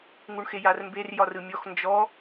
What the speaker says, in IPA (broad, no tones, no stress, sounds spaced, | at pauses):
ŋ u ɳ x e j a r m b e r j ɒ r ɯ mʲ ɔ x n d͡ʒ ɔ